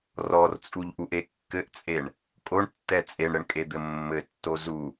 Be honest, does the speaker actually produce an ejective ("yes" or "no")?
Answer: yes